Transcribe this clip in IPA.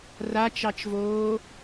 r a t͡ʃ ɑ t͡ʃ v oː

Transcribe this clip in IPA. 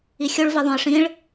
i xʲ o ɭ v i ðˤ õ ɪ̯ ʂ ĩ ɭ

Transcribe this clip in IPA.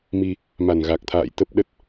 m i˧ | m a˨˩ n ɣ a˨˩ k̚ t̪ʰ a̰ː˧˨ j t̪ ə˦˥ p̚ ɗ ə˦˥ t̚

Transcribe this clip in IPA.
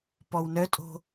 p ɔ w n œ tʼ o̤

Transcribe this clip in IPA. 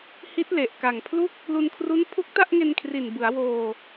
h i˦˥ t̚ l e˨˩ ʔ k a˨˩ ŋ pʰ l u˦˥ k̚ | l u˧ n kʰ r u˦˥ n pʰ u˦˥ k̚ t a˥˩ ʔ ŋ e˧ n kʰ r i˨˩ n b ɯ˩˦ a̯ w oː˧

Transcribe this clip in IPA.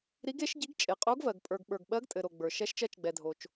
ɾ i˧˥ ɡ e˧˥ ʃ ɟ i˧˥ ɡ t͡ʃʼ e˨ qʼ o˧˥ ɡ v ɜ˨ ɡ pʼ ə˞˨ ɡ ɓ ə˞˨ ɡ ɓ ɜ˧˥ ɡ tʼ ɘ˨ ɾ o˨ ɡ͡b ə˞˨ ʃ ɛ˧˥ ʃ t͡ʃ ɜ˧˥ t͡ʃ ɡ͡b ɛ˨ dʱ o˨ t͡ʃ

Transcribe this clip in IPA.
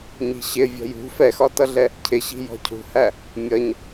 ɲ i̤ ɕ ɪ vʲ ɔ̤ j ṳ f ɛ x ɒ t ʌ ɮ ɛ | cʰ ɪ ɕ i̤ j ɔ̤ cʰ ṳ h æ | mʲ ʌ ɲ

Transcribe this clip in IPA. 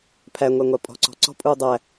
pʰ æ ŋʷ æ ŋʷ a pʼ ɔ̤ ǀ ɔ̤ ǀ ɔ̤ pʼ uː dˤ æ

